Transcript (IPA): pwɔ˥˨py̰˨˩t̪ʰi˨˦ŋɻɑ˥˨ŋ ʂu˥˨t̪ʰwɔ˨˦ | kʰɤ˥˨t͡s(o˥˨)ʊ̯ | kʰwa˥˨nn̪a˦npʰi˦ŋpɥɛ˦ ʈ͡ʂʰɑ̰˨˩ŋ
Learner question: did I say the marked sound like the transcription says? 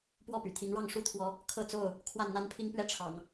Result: yes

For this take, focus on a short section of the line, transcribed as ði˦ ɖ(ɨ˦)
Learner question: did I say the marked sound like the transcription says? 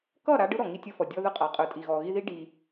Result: no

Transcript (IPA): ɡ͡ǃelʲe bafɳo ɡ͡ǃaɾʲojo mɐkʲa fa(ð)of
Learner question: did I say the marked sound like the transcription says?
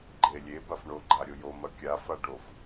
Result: no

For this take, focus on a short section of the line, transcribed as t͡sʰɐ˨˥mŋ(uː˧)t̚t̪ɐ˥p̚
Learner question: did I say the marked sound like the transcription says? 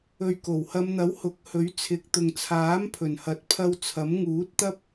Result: no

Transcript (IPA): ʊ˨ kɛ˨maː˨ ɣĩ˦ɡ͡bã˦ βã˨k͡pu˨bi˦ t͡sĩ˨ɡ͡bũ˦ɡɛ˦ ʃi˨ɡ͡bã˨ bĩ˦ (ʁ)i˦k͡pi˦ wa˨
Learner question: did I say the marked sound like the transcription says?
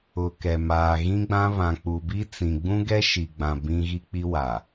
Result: no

